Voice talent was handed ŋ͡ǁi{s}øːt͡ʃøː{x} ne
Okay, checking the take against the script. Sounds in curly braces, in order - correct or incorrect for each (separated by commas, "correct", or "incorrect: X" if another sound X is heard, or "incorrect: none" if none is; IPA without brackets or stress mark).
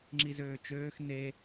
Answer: incorrect: z, correct